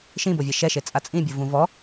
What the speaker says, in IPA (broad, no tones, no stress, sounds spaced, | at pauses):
ʃ ĩ b o vʲ ɛ ʃ ɛ ʃ e t͡sʼ a t͡sʼ ĩ bʲ u v ũ v ɔ